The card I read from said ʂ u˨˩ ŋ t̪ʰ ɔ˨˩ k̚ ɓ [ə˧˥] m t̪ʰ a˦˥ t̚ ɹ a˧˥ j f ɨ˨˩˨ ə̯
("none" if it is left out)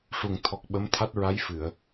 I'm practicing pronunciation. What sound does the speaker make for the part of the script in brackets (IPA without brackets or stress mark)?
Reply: ə˧˥